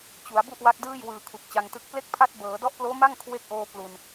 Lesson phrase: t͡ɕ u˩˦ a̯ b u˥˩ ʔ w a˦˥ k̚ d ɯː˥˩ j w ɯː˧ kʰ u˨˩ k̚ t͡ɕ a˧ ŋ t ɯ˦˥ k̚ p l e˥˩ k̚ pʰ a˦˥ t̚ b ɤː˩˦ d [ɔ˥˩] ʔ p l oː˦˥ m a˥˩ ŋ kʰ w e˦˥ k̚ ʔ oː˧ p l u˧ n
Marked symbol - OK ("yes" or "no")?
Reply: no